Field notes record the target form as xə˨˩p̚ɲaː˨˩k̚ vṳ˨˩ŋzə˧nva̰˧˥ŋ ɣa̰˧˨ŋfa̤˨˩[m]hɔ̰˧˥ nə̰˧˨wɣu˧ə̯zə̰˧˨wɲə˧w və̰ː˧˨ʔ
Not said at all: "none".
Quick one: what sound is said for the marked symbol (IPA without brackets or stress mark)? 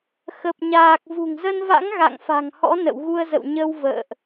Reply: ŋ